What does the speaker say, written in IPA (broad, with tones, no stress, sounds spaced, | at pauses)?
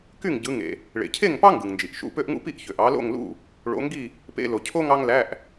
k y˥˨ ŋ ɟ ɯ˨˦ ŋ ḛ˩ | ɭ ḛ˩ cʰ e˥˨ ŋ p ɑ˥ ŋ ɡ ɯ˩ ŋ n d͡ʒ i˩ ʔ ʃ ṵ˧˥˧ p ø˥ ʔ ŋ ṵ˥ p i˥ ʔ ç ø˩ ʔ ɑ˨˦ l o̰˥˨ ŋ l ṵ˥˨ | ɭ o̰˨˦ ŋ ɡ i˥˨ | p ḛ˧˥˧ l o˩ cʰ o˥ ŋ ɑ˥ ŋ l æ˧˥˧ ʔ